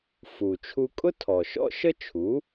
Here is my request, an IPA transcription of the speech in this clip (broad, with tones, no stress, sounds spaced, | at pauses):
f u˩ t͡ʃʰ u˧ kʼ ʊ˥ tʰ ɔ˩ ʃ ɔ̰˥ ʃ ə˥ t͡ʃʰ u˩˥